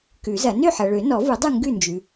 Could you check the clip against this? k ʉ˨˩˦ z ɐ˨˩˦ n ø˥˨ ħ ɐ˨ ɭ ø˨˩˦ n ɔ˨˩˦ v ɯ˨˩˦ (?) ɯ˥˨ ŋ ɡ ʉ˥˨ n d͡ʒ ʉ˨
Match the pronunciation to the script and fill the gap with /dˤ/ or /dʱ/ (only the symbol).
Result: dˤ